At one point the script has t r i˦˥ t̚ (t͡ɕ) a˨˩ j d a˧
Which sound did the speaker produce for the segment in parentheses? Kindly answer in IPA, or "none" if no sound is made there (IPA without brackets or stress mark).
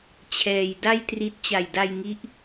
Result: t͡ɕ